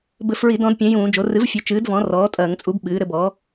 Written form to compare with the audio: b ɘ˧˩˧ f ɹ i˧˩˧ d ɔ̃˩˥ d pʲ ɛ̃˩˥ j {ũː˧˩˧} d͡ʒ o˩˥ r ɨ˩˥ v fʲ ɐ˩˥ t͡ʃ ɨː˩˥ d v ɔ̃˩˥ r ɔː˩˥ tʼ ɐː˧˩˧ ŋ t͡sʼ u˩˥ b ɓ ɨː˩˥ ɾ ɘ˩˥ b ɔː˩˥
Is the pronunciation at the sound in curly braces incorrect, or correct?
correct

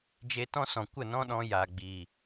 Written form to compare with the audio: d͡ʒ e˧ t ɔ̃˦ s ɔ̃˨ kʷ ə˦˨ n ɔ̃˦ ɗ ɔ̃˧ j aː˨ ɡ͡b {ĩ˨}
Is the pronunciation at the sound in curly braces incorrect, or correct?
incorrect: i˨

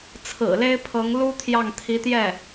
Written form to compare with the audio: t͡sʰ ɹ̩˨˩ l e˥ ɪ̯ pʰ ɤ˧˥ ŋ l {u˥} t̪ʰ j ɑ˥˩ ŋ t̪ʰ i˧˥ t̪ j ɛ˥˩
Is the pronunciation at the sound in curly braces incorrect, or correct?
correct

